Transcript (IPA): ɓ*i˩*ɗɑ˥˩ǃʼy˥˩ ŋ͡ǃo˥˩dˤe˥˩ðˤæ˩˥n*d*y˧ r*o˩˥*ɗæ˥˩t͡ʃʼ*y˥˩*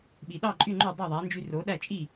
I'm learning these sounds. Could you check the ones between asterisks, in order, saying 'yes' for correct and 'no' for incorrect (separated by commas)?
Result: yes, no, yes, no